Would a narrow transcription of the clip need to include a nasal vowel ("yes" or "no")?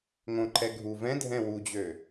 yes